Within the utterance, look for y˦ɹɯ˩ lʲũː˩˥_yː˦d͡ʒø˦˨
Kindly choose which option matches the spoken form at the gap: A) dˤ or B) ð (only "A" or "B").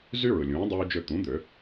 A